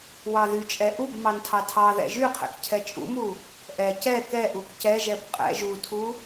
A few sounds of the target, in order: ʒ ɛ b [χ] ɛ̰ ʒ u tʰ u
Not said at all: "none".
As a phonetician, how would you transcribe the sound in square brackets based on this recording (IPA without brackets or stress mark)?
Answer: qʼ